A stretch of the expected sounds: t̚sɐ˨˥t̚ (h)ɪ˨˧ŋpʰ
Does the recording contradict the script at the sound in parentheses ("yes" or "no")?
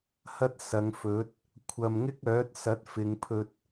yes